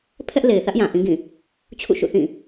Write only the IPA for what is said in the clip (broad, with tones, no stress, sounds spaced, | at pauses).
pʰ ɛ˦ ʔ l e˨ ɪ̯ θ ä˦ ʔ j ã˨ ʔ ĩ˦ ɡ ĩ˦˨ | t͡ɕʰ ṵ˦˨ ʃ ṵ˦˨ θ ĩ˦˨